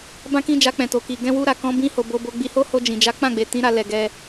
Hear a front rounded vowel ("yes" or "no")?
no